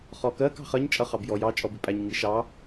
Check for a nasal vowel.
absent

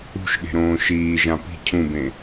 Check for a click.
absent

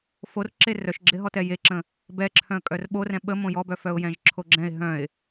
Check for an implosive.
present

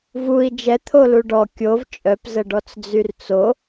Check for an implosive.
absent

